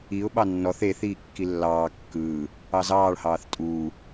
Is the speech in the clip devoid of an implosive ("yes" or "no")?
no